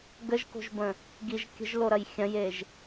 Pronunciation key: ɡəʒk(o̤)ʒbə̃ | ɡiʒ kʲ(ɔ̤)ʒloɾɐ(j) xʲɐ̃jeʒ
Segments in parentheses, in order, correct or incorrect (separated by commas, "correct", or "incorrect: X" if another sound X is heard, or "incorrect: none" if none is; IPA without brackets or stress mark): correct, incorrect: ə̤, correct